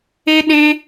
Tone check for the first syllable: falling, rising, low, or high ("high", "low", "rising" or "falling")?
high